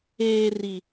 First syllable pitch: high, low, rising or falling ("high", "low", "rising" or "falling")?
low